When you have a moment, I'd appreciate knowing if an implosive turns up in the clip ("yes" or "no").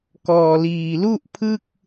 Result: no